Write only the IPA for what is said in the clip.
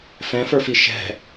fɛ̃fə˞fi ʃɛ̤

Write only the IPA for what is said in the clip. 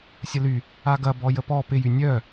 sʲəly | aɡɐbɔ jəpɔ pɪjy nʲœ

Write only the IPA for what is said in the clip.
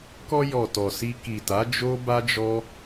kɔ˧ jɔ˨ tɔ˨si˧ ki˨ta˨˦d͡ʒo˦ ba˦d͡ʒɔ˦

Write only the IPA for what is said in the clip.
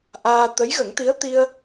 ʔaː˧ t̪ə˧˥jɣə˨˩˦ŋt̪i˧˥ə̯t̪i˧ə̯

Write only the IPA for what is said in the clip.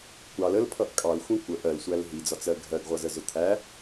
kʷɑl əlpʰʌʔ kʼɑlxʷĩ kʷəʔ ɜlsʷæl ɦid͡zɒt͡sɜ ɡʱɜɡʁʷʌzəzʊ t̪ʰæ

